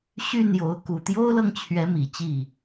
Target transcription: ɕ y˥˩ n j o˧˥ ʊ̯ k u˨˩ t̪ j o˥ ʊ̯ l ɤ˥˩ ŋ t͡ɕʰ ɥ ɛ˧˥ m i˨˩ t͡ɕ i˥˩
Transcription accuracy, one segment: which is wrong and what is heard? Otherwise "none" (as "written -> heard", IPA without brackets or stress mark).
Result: none